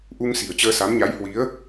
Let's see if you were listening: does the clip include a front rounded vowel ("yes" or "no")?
no